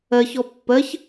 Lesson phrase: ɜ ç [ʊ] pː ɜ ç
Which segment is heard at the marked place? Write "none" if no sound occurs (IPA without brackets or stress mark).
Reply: ɔ